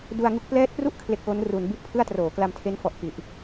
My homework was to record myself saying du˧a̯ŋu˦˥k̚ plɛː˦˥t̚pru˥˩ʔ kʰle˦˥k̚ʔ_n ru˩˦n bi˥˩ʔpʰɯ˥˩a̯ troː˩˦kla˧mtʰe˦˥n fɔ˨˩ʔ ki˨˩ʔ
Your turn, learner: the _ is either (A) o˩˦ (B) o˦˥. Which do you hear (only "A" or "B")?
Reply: B